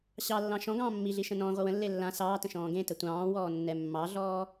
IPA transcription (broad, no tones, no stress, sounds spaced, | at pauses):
ɕ ɑ lː ɑ̃ ʃ ɔ̃ ɡ ɑ̃ː mː i ɮ i ʃ ə̃ n ɔ̃ː ʁʷ ə w ə̃ lː e lː ã s ɑː t ə̃ ʃ ɔ̃ː ɡ ẽ t ə tʷ ɑ̃ː w ɔː nː ɛ mː ɑ ɮ ɔː